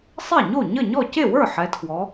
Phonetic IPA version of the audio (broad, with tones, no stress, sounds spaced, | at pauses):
sˤ ɛ˥˩ ɲ o˥˩ ɲ ə˥˩ ɲ ɔ˥˩ c e˥˩ w ə˞˥˩ ħ ɛ˩˧ tʰ w ɔ˩˧